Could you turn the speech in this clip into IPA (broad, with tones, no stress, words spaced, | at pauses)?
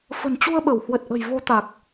fə̤˨˩nt͡ɕu˧ə̯ɓə˧˩w hwə˨˩t̚ʔə̤˨˩jvo˨˦ t̪a˨˩k̚